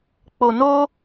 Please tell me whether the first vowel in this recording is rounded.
yes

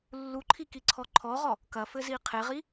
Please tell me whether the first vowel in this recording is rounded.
yes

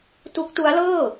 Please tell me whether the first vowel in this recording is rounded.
yes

